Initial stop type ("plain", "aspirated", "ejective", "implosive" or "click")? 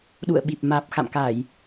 implosive